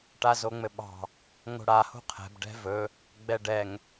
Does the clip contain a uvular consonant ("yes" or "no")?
yes